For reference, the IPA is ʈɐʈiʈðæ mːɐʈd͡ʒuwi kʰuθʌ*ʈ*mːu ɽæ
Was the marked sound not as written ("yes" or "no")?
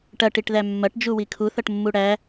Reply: no